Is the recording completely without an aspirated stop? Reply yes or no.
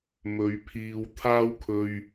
no